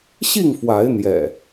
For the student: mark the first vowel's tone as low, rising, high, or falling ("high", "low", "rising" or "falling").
falling